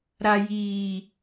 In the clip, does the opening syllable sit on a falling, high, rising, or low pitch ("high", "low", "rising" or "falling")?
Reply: low